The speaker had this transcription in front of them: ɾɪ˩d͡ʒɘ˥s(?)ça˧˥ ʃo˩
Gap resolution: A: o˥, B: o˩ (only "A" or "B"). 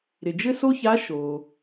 A